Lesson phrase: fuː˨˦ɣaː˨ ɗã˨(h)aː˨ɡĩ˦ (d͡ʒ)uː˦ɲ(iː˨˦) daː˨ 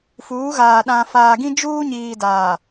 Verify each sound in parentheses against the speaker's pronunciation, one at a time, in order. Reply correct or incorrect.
incorrect: f, correct, incorrect: iː˨

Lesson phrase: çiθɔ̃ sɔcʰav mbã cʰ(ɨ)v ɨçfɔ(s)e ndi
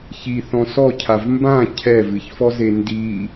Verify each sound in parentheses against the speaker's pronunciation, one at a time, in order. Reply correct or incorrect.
incorrect: ɛ, incorrect: z

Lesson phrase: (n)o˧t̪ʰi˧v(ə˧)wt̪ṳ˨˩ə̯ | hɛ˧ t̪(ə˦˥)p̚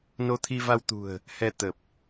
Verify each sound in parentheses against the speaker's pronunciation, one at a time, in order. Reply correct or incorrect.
correct, incorrect: a˧, incorrect: ə˨˩

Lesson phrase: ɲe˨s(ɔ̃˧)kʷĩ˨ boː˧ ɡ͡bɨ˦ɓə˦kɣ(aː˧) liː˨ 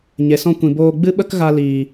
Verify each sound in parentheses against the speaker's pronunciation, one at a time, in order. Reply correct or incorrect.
correct, incorrect: a˧

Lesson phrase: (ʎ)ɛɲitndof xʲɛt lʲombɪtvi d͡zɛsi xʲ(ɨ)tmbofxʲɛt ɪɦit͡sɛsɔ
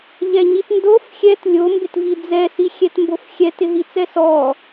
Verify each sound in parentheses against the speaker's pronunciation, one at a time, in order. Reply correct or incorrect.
correct, incorrect: ɛ

